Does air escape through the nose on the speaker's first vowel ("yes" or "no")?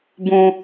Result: yes